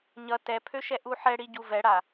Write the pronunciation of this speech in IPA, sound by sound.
ɲʌ tɛpʰøʃɛ ʔuħɛɽi ɟuvɛɽa

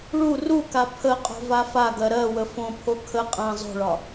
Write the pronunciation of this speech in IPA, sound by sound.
ɭu ruka pʰəqʼo̤ vafaɡɜ ɾɜwə fõpʰo kʰə qʼã zˤo̤ɭɒ

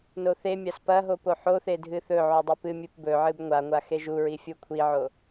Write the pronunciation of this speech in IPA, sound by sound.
noθemʲas pɐ ɦopoħoθe dʱɨθɵʕu dˤipɨmʲɨp bɵʕɨb ŋʷaŋʷa xeʒuɹi fʲukʷʰiʕo

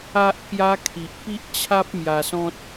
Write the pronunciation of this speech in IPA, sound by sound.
a˦ʔkja˦ kʰi˨ʔpi˦ʔt͡ɕʰa˦p̚ mja˧sɔ̃˦t̚

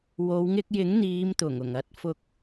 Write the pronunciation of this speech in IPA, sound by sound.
wo˨˧wŋɪ˧k̚jɪ˨˥ŋ n̪iː˨˧mt̪ʊ˨˩ŋ ʊ˨˩ŋɐ˧t̚ fʊ˧k̚

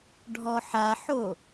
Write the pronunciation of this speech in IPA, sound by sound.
ɖʱɔħaħo

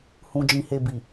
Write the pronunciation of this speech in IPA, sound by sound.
hũ˨d͡ʒĩ˨he˨bi˨

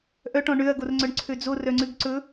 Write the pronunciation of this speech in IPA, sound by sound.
ʔœʈɔ̃ ɳøɐ̯ɡorŋ͡ǀœɳǀʰø d͡zorœŋ͡ǀʉɡ ǀɵ

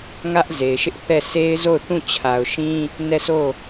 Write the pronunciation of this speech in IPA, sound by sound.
ŋä˦ʔ ze˨ɪ̯ʃɪ˦ʔθɛ˦˨ se˦ɪ̯zo˦˨ʊ̯θũ˦˨ t͡ɕʰa˨ʊ̯ʃĩ˦ | nɛ˦˨so˦˨

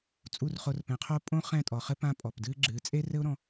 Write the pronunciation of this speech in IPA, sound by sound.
t͡sʼu˦˨rχo˧rpɛ̃˨qʰo˦ pʼõ˦ χɛ̃˦˨tʼɔ˨χɘ˦ pã˦pʼɔ˨pdɨː˦ɡ͡ǁɨː˨˦ t͡sʼe˦rɘ˦ʊ̯ɾɔ̃˧

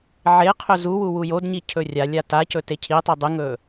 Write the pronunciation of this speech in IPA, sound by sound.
ʕeqʰɵ zuwu wujodɲi cʰɵrʲalʲa tacɵ tecʰitˤɨ dˤɨŋɵ

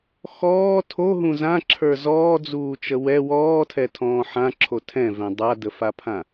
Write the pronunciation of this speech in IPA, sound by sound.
xɔː tʰoɦũ zãǁʰə˞ zɔːd͡zuːt͡ʃə wɛ wɔːtʰɛtʰɔ̃ː ħãǁʰo tʰɛ̃vɛ̃ dˤadəfapʰã

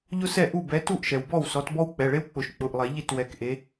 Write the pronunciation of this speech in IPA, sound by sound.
ʎʊ˥sɛ˥˩ ʔu˥˩ bɛ˨˦tu˥˩ʔʃɛ˩w bɔ˥˩wsɔ˨˦tbɔ˥w k͡pɛ˩˧˩ɭe˥wk͡pʊ˨˩˦ʃ k͡pʊ˩˧˩ʔlˠe˨˩˦ ʎi˥˩twɛ˨˦kʔe˨˦

